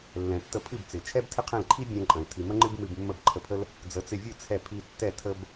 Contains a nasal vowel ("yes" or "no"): yes